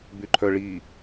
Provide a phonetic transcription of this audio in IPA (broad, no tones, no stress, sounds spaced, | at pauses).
b y ǃʰ œ ɭ i